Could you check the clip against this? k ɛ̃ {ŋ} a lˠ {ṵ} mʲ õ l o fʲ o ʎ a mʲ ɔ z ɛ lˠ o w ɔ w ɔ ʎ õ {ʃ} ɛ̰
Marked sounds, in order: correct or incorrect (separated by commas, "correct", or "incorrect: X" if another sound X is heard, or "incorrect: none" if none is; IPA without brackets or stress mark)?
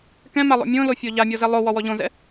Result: incorrect: m, incorrect: o̰, incorrect: z